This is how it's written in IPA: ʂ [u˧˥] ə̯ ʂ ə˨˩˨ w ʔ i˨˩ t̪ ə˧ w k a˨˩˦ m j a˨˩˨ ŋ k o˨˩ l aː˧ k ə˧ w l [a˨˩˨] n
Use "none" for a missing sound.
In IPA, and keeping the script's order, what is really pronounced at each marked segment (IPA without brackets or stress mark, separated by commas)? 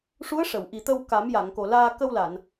u˧˥, a˨˩˨